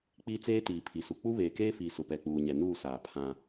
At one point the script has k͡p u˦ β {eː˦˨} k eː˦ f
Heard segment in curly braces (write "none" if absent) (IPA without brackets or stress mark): eː˨